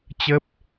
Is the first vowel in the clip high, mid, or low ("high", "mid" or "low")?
mid